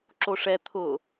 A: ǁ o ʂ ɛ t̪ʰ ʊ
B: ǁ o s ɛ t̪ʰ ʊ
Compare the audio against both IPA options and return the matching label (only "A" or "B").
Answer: A